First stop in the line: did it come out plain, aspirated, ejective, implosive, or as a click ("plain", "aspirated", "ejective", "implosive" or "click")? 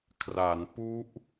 aspirated